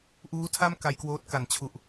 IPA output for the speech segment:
ʔ uː˦˥ tʰ a˥˩ m k a˧ j k w oː˦˥ t̚ k a˩˦ n t͡ɕʰ u˨˩ ʔ

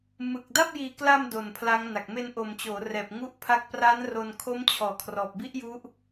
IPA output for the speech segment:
m ɯ˨˩ k̚ d a˥˩ p̚ j iː˨˩ k l a˧ m d o˨˩ n pʰ l a˦˥ ŋ n a˨˩ k̚ m e˧ n ʔ o˨˩ m t͡ɕ oː˩˦ r ɛː˨˩ p̚ ŋ u˦˥ ʔ pʰ a˦˥ k̚ p r a˦˥ n r o˧ n kʰ o˦˥ m t͡ɕʰ ɔː˨˩ kʰ r ɔː˨˩ p̚ b i˦˥ ʔ j u˦˥ ʔ

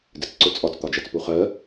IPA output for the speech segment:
d ɪ t͡s ǀ ʊ t͡sʼ ɒ t͡s t̪ ɒ d͡ʒ æ t͡s p u χ ɜ

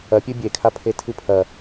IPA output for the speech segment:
ɐ pʲ ɨ bʲ e kʰ a pʰ e tʰ ɨ pʰ ɐ

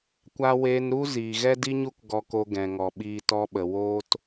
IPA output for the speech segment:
kʷ a˧ w eː˧ n ɾ u˦ z iː˨ ɣ ɛ˦ d i˦ ɲ u˦ k ɡ ɔ˧ k o˧ ɡ ɛ̃˨ ŋ ɔ˨ ɓ iː˧ t ɔ˦ ɓ ə˨ w oː˧ t

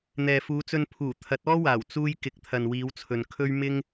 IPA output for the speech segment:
n̪ ɛː˨ f uː˨˧ t͡s ɵ˧ n pʰ uː˨˩ t̪ʰ ɐ˨˥ t̚ ɔː˥ w aː˨˩ w t͡s uː˥ j k ɪ˨˥ k̚ t̪ʰ ɐ˨ n w iː˨˧ w t͡sʰ ɵ˨ n kʰ ɵ˥ ɥ m ɪ˥ ŋ

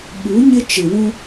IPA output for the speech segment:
ɓ u˨˦ ɲ ɪ˦ t͡ʃ ɪ˨ w ũ˦

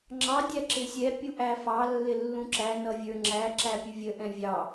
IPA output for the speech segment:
ŋ͡ǁ ɑ dʲ æ ǁ ɪ sʲ ɛ pʲ u ʔ æ f ɑ lː ɪ lː ũ ǁ æ n ʌ vʲ ə˞ ŋ͡ǁ æ ǁ æ pʲ u vʲ ə ʔ ɛ̃ vʲ ɑ

